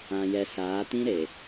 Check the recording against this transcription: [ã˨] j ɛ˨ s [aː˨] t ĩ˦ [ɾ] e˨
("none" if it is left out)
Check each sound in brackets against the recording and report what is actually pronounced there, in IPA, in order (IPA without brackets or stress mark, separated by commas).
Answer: ã˨, aː˨˦, ɾ